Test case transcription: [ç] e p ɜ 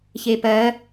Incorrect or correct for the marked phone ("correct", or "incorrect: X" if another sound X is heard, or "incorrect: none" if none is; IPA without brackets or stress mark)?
correct